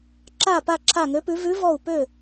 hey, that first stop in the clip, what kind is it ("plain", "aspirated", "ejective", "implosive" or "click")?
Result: click